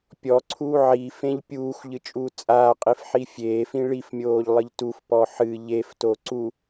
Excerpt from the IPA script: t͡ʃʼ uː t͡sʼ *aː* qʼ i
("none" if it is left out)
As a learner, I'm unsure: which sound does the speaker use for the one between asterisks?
aː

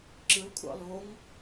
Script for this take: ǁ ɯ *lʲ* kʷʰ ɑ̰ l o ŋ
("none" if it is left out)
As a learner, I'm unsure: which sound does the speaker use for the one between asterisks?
l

